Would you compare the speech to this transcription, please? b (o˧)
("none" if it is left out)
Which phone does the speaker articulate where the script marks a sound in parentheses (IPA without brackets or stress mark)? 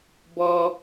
ɔ˧